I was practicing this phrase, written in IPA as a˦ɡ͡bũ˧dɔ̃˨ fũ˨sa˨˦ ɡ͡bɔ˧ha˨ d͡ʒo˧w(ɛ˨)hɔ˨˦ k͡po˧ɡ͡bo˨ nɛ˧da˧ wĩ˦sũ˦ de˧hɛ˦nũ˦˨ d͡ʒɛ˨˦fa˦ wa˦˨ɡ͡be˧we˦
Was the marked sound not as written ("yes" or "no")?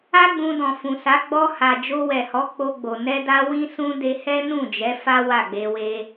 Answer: no